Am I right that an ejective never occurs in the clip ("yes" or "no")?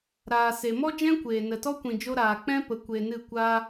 yes